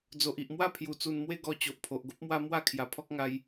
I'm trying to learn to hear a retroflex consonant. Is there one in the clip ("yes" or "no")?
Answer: no